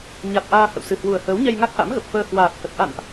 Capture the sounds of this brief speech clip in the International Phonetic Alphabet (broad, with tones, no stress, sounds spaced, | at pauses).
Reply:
ɲ a˨˩ t̚ ʔ aː˧ h ə̰˧˨ w s ɨ˨˩ h w u˨˩ ə̯ h əː˨˦ w ɲ ɛ˧ j ŋ a˦˥ k̚ ʔ a̰˧˥ m ɣ ə˨˩ p̚ f əː˧ h w aː˨˩ t̚ h ə˨˩ t̚ ʔ a̰˧˨ n ʔ